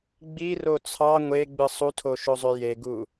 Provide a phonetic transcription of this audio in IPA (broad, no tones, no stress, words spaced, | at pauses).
ɡ͡biro t͡sʰɑ ŋʷeɡ͡bɯ sˤutʰoʃozˤø jeɡu